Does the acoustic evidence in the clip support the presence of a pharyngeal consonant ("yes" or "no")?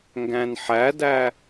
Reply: yes